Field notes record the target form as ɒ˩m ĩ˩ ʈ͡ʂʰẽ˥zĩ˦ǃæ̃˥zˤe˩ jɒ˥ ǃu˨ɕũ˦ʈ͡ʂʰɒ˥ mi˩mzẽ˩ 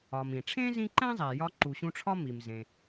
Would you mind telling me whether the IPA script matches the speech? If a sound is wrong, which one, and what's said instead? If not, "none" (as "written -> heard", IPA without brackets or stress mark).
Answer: none